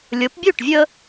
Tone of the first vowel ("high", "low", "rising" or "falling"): rising